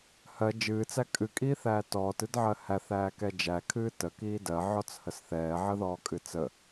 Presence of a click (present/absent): absent